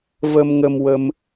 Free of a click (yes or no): yes